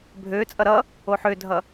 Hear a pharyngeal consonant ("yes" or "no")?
yes